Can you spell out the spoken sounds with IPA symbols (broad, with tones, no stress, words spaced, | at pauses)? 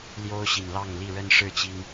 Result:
ljo˦ʊ̯ɕi˨˩nlɑ˥˨ŋli˥˨ ɻə˦n ʂɻ̩˥˨t͡ɕi˦ŋ